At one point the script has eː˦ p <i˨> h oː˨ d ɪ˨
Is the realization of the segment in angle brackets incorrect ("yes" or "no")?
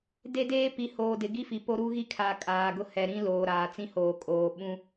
no